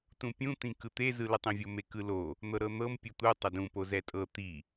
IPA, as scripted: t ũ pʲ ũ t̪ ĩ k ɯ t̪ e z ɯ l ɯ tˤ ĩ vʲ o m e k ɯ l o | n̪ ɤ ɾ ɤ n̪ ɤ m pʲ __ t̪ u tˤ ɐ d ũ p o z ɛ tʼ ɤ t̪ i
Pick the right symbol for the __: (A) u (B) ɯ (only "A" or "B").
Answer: A